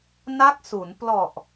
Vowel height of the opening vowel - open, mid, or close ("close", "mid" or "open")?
open